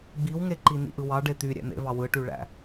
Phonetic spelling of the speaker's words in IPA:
ɡ͡biwŋeǃi nḭʔɯwɑ ɖet̪y ɾʲæ̰n̪ḛvɑ wɯʈyɭæ̰

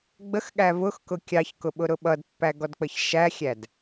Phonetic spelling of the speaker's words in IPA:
ɡ͡bəxɠæ vʊxkʊ kʲɑçkʊ ɓʊɾʊɓʌdpːæ ɡɔdk͡pəçʃæxʲæd

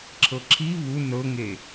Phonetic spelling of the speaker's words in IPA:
ǁʰɤǁʰi βu nɤŋe

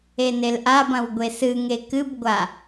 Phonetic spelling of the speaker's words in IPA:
enelʔabɐ̃w ɡʷesɨŋe kɨbɡʷa

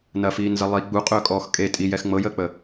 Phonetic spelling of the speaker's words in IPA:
nɐfiːnzɐ lˠi ɡ͡buqʼɵːkʼɔːx kʼe tʼijɛx ŋ͡mɤjəːk͡pə

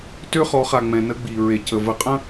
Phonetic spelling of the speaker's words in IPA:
tø˦χɔ˨˦χa˨ŋ͡mɛ̃˨ nə˦ɡ͡bi˨ ɹe˨cə˨və˨qʼə̃˦

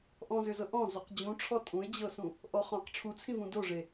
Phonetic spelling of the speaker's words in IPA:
ʔɔ̃zʏzɤ ʔɔ̃ zɔqd͡ʑũʈ͡ʂʰɔ tʼũe̯d͡ʑɤsũ | ʔɔχɔ̃q ʈ͡ʂʰut͡sʰĩvũ doʐe

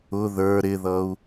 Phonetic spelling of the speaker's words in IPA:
ʊ ðə˞ ɾɪðʌu̯

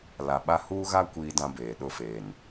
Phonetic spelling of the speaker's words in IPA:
la˨ɓa˦ huː˦ɣa˦ kʷiː˦dã˦beː˨ ɗʊ˦˨feː˨n

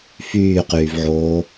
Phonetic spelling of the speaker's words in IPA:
fyːqyːvʕoː

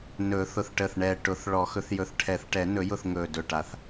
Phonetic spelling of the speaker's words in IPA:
nɵː˨˩˦θʊ˧˩θʈəː˧˩θɳɛː˧˩ ʈʊ˨˩˦θ ɭɔ˨˩˦xɵ˨˩˦θjɵ˧˩θ ʈʰɛ˨˩˦θʈɛ˨˩˦ nɵ˨˩˦jʊ˧˩θ ŋɵː˧˩dɵ˧˩ʈa˧˩θ

